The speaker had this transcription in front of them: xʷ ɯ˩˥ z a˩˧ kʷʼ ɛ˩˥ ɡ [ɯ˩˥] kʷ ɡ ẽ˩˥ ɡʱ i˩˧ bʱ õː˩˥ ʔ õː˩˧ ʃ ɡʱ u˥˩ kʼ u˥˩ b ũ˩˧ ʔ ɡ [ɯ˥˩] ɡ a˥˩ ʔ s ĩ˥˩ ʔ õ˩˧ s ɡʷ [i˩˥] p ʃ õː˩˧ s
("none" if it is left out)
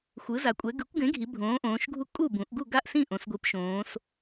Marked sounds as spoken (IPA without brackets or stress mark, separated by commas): ɯ˩˥, u˥˩, i˩˥